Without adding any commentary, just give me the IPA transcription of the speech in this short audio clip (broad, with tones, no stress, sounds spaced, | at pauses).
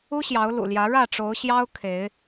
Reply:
u˦ ɕ j ɑ˨˦ ʊ̯ l ṵ˨˩ l j ä˨˦ ɻ ä˥˨ ʈ͡ʂ o˨˦ ʊ̯ ɕ j ɑ˦ ʊ̯ kʰ e˨˦ ɪ̯